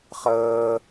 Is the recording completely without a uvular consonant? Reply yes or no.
no